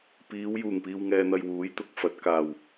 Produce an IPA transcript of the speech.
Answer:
p iː˨˧ w j uː˨˩ ŋ p iː˨ w ŋ ɛː˨ n̪ ɐ˨ j w uː˨˥ j t̪ ʊ˨ k̚ f ɐ˨˥ t̚ k aː˨˩ w

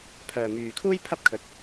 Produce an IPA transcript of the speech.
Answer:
pʰ œː˨ m yː˨ kʰ uː˥ j pʰ ɐ˥ p̚ kʰ ɵ˨˥ t̚

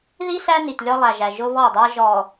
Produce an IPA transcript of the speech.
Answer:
ð i˦ s æ˦ n i˨ t lʲ ɔ˦ lˠ æ˨ ʒ æ˨ ʒ ʊ˦ β ɔ˦˨ dˤ æ˦ ʒ ɔ˨

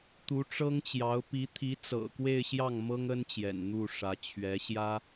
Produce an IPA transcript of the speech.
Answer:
t̪ u˧˥ ʈ͡ʂ ɤ˥ ŋ t͡ɕ j ɑ˧˥ ʊ̯ p i˧˥ t̪ʰ i˧˥ t͡s ɤ̰˨˩ k w e˥˧ ɪ̯ ɕ j ɑ˥˩ ŋ m ɤ˥ ŋ ə˥ n t͡ɕ j ɛ̰˨˩ n n̪ u˥˩ ʂ ä˧˥ t͡ɕʰ ɥ ɛ˧˥ ɕ j ä˥

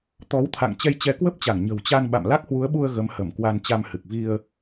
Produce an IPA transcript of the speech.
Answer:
t̪ ɔ˨˦ w t̪ʰ a̰˧˨ ŋ t͡ɕ ɛ˧ j t͡ɕ ɛ˨˦ k w ə˦˥ p̚ t͡ɕ a˧˩ ŋ ɲ ə̤˨˩ w t͡ɕ a˧ n ɓ a̰˧˨ m l a˦˥ k̚ h w u˨˦ ə̯ ɓ u˧ ə̯ ɣ ə˨˦ m h ə˧˩ m k w a˧ n t͡ɕ a˧ m h ɨ˨˩ k̚ v i˧ ə̯

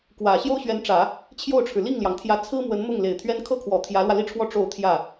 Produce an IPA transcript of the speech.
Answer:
k w ä˨˩ ɕ j o˥ ʊ̯ ɕ ɥ ɛ˧˥ n ʈ͡ʂ ä˨˩˦ | t͡ɕʰ j o˥˩ ʊ̯ ʈ͡ʂʰ ɻ̩˩ l i˥˩ ŋ l j ɑ˩ ŋ t̪ʰ j ä˧˥ t͡sʰ ɹ̩˥ m w ə˧˥ n m ʊ˥˩ ŋ l e˨˩ ɪ̯ t̪ʰ ɥ ɛ˥ n kʰ ɤ˥ kʰ w ɔ˨˩ t̪ʰ j ä˧˥ l w ä˧ l i˥ ʈ͡ʂʰ w ɔ˥˧ ʈ͡ʂ o˥˧ ʊ̯ t̪ʰ j ä˥˩

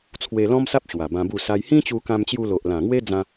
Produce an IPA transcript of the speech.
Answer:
t͡sʰ w e˧ l ɔ̃˦ m s a˦ p̚ ɕ w a˨˩ b ã˧ b u˥˧ s a˦ j h ĩ˦ t͡ɕ u˧ k ã˧ m t͡ɕ j u˧ l o˨ ʔ l ã˨˩ ŋ w e˦ d͡z ã˧

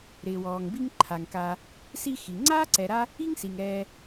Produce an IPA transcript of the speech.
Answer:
ɾ ɪː˩ w ɔː˩ ŋ b i˦ ŋ ǃʰ a˩ ŋ k a˨ | s i˦ x i˩ ŋ͡ǀ aː˥ ǀ ɛ˨ ɾ a˦ | i˥ ŋ s i˩ ŋ ɛː˨

